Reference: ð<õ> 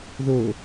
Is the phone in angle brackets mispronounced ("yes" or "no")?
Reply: yes